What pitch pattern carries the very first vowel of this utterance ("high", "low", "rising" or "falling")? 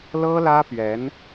high